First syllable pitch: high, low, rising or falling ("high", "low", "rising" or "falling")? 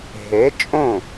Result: rising